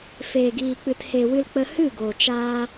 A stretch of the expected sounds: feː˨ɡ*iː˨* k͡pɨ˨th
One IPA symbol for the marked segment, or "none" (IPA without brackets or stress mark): iː˨